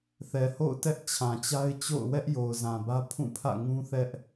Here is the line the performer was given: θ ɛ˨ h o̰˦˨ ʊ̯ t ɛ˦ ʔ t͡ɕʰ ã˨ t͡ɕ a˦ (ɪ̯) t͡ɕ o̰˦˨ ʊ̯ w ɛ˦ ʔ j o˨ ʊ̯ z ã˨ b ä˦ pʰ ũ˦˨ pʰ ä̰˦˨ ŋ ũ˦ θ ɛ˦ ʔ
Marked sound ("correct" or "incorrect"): correct